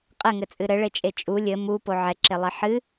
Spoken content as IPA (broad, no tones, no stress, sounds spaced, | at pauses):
qʼ ɘ ŋ ɘ t͡sʼ ɨ ɾ ɘ ɭ e t͡ʃʼ e t͡ʃʼ u lʲ ɘ m u p o ʕ ɛ ǁ e lˠ e ħ ɨ